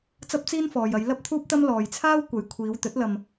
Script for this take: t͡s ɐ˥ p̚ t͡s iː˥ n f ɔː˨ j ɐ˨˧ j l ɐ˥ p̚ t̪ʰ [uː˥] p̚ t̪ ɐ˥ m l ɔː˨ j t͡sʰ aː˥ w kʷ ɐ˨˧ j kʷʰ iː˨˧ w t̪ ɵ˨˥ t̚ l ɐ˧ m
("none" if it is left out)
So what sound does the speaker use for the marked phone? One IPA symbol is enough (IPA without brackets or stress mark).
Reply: uː˥